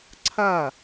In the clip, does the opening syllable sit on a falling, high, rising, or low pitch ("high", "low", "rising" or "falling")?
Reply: falling